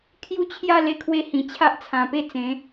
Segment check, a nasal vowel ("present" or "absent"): present